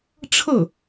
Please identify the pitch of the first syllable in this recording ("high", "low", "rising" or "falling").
falling